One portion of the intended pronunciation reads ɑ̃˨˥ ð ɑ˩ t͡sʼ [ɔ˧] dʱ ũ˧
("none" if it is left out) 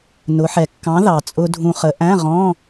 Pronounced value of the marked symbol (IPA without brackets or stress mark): ʊ˧